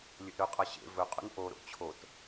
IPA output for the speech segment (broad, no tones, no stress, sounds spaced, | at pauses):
lʲ ɵ ʔ ɾ ɵ qʼ ɑ ɕ ḛ v ɵ qʼ ṵ n ʔ o ɾ o̰ t͡ɕʰ o t